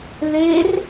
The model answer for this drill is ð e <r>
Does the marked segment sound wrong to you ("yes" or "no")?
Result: no